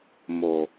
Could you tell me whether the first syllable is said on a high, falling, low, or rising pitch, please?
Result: low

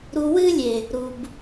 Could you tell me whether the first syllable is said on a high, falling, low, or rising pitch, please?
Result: low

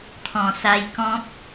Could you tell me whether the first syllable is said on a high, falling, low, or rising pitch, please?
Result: low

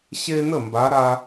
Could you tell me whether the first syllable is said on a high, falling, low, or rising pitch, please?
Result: high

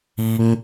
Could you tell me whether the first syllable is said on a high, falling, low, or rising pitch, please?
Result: high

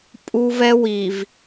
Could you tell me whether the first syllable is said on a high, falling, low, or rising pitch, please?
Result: high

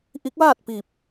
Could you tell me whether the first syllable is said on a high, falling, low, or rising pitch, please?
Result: rising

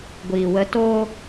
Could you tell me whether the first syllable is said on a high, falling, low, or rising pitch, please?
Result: low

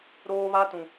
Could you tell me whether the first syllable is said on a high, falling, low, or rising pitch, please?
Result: high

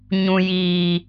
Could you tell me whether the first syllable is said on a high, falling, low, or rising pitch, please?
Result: low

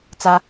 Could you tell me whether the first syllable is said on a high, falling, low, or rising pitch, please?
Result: high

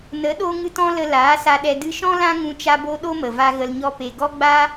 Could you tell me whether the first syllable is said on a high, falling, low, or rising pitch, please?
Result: rising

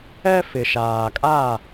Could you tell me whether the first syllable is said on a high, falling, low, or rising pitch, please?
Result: high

